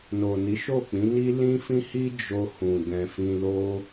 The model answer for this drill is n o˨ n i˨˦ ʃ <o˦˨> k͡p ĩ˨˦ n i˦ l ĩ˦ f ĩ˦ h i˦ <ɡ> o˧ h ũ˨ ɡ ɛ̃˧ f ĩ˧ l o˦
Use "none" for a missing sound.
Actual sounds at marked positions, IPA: o˦˨, d͡ʒ

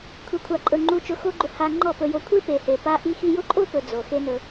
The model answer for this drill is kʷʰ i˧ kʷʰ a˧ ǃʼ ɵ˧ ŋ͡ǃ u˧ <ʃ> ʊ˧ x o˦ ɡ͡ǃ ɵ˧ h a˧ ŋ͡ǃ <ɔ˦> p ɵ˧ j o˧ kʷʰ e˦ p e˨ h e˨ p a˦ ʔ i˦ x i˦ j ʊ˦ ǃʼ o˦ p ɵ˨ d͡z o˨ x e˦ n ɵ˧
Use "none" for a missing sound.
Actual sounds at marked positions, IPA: t͡ʃ, ɔ˦˨

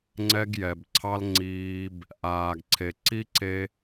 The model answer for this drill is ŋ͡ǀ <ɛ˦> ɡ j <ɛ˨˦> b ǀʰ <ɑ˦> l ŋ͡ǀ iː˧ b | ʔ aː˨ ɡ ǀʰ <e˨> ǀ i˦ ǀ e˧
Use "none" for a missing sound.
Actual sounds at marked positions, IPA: ɛ˦, ɛ˨, ɑ˦, e˨

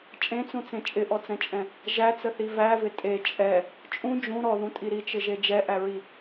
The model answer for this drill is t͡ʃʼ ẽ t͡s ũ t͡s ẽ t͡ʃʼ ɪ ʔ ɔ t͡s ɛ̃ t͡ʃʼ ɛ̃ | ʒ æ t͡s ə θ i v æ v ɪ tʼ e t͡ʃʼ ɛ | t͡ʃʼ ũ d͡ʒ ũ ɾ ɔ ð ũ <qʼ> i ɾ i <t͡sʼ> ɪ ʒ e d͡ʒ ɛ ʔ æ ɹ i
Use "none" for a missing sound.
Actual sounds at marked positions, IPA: tʼ, t͡ʃ

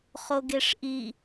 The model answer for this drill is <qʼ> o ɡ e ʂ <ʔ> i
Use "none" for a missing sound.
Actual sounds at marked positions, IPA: χ, ʔ

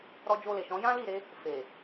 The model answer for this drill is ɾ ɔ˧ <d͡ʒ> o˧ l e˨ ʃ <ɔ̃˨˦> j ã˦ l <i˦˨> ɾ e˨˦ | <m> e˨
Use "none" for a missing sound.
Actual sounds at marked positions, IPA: d͡ʒ, ɔ̃˨˦, i˦˨, f

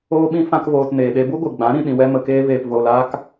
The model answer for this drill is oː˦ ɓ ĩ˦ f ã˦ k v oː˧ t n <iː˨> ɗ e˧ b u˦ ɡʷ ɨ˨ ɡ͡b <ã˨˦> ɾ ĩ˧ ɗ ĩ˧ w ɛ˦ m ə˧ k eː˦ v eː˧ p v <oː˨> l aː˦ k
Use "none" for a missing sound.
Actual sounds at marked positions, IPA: eː˨, ã˨˦, oː˧

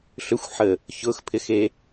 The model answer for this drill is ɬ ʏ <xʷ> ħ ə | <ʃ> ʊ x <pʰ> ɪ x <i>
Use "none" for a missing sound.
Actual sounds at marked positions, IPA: xʷ, ç, pʰ, e

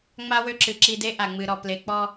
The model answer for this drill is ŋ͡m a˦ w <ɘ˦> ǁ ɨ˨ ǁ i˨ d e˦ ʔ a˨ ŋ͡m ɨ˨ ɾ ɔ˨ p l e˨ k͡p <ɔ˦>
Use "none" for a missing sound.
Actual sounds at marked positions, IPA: ø˦, ɔ˦

